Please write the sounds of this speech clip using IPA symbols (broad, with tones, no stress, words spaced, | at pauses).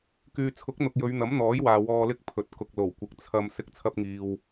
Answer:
kyː˨t͡sʰʊ˨˥k̚n̪ʊ˨k̚ jɵ˨˧ɥn̪ɐ˨˥mn̪ɔː˨˥jwaː˨ wɔː˧ lɪ˥k̚pʰɵ˨˥t̚ kʊ˨k̚lo˨˩wkʷɪ˨˥k̚ t͡sʰɐ˧m sɪ˥k̚ t͡sʰɐ˧p̚ŋiː˨w